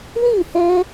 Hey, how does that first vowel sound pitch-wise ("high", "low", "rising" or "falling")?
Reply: falling